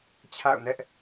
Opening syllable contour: falling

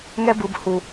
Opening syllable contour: high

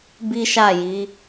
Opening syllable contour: high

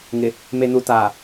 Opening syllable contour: low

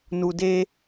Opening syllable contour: low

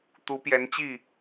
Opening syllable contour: rising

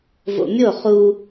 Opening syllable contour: low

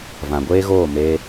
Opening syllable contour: low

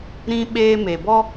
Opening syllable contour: high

